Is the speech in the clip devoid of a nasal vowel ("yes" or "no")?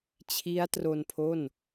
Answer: yes